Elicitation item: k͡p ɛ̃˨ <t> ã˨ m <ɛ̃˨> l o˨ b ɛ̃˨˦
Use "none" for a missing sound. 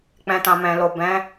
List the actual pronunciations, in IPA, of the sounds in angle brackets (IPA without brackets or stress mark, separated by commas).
t, ɛ̃˨